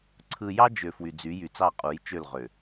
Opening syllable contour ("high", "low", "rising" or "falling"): low